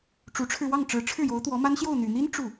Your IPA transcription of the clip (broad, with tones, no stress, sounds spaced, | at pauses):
ʈ͡ʂ u˧˥ ʈ͡ʂʰ ɻ̩˧ w ɑ˥˩ ŋ ʈ͡ʂ ɻ̩˧˥ ʈ͡ʂʰ ɻ̩˥˩ j o˧˥ ʊ̯ t̪ w ɔ˧˥ m a˥ n ɕ j o˥˩ ʊ̯ n̪ y˨˩ n̪ i˥ n ʈ͡ʂ u˥˩